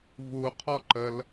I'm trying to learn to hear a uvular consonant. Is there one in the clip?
yes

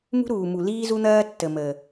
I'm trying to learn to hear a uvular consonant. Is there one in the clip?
no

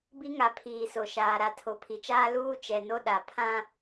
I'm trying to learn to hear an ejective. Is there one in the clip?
no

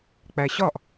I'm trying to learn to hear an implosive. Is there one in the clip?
no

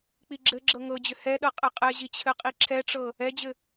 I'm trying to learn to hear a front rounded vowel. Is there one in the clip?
yes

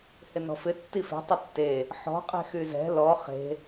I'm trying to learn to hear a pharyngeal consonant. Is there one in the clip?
yes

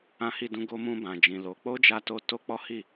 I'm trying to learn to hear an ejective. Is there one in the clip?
no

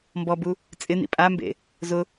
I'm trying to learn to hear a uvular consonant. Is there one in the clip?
no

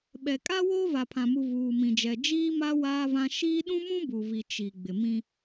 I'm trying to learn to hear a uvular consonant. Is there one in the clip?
no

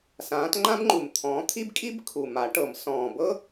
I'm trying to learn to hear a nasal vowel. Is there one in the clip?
yes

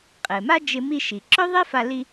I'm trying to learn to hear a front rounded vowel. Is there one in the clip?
yes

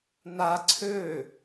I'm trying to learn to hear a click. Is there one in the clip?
yes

